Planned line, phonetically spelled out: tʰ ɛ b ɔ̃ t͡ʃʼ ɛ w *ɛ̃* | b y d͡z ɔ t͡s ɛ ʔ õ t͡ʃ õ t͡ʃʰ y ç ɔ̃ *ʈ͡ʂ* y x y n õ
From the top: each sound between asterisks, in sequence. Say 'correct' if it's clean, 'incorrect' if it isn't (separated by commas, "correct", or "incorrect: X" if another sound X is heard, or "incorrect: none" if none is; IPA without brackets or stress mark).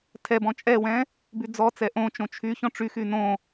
correct, correct